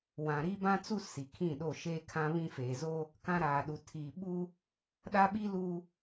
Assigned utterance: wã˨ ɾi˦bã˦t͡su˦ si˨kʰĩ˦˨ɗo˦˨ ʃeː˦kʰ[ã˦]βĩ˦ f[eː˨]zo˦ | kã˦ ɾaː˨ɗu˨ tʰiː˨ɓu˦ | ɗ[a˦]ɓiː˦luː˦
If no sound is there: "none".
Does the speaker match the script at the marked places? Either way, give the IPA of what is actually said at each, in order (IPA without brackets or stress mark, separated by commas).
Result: ã˦, eː˨, a˦